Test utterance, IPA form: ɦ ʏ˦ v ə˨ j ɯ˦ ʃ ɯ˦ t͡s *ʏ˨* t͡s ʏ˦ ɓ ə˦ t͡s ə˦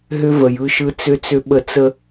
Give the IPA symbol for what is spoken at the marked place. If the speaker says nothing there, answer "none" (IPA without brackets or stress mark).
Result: ʏ˦